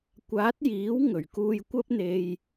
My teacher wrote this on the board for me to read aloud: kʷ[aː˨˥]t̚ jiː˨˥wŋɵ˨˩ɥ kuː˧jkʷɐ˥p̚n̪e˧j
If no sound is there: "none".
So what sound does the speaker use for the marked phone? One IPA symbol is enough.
aː˨˥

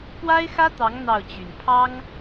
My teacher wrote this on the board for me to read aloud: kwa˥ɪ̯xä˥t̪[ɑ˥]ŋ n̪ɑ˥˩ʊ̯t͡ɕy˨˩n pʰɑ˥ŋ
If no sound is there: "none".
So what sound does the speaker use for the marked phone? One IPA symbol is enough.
ɑ˧˥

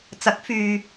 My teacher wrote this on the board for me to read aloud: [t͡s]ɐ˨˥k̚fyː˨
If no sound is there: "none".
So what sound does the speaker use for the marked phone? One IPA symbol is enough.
t͡s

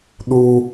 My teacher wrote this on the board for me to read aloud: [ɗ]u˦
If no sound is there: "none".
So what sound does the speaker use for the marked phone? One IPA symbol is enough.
ɗ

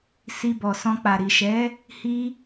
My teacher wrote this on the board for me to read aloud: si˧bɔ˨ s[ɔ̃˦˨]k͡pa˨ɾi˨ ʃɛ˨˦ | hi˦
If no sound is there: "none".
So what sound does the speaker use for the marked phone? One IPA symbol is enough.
ɔ̃˧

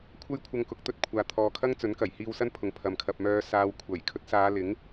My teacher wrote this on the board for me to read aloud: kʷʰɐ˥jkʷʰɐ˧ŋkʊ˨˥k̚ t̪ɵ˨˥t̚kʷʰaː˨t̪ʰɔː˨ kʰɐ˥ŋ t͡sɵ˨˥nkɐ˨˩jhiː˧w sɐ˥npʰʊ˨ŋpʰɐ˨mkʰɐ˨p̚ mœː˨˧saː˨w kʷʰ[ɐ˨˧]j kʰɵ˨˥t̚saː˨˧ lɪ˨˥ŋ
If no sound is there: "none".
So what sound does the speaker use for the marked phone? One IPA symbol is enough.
ɐ˨˩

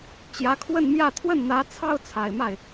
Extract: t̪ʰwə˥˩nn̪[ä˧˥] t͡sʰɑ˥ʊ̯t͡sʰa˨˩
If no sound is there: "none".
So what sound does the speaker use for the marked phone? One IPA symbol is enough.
ä˧˥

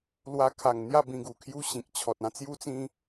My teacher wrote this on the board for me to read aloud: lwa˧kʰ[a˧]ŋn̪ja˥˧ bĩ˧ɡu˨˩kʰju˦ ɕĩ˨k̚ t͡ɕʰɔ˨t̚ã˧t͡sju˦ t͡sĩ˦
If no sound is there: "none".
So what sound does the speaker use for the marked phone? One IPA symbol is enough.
a˨˩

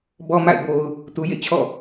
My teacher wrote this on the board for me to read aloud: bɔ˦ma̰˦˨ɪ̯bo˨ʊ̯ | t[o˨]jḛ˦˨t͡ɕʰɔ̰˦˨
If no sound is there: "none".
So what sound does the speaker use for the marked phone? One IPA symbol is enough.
u˨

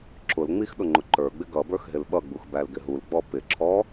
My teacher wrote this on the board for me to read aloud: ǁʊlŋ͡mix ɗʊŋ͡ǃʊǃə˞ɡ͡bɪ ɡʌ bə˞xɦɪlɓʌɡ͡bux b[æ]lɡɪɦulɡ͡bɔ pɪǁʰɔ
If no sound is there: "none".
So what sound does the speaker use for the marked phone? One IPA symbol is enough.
æ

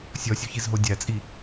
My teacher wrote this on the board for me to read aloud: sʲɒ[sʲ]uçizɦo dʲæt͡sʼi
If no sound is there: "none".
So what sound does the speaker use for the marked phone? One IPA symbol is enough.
sʲ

